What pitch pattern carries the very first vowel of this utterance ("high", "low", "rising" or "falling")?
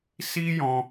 high